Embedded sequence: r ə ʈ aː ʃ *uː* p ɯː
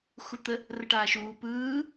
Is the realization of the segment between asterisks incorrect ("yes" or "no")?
no